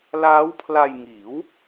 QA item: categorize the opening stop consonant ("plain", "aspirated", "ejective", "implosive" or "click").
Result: aspirated